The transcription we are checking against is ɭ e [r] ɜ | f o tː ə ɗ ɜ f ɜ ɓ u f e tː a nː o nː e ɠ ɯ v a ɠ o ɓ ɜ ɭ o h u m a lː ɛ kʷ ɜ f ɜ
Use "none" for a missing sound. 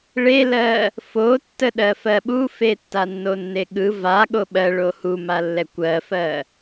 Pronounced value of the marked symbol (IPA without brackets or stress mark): l